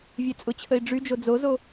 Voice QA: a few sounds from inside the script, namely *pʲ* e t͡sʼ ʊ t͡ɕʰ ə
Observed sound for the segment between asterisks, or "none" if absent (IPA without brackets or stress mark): vʲ